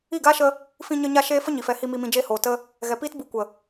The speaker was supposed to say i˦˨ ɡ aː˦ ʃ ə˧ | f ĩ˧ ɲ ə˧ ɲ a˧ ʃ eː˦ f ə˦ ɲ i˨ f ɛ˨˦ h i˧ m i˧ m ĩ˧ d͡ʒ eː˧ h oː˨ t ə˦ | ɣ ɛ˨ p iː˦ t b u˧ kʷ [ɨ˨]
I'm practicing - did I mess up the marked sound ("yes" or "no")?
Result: yes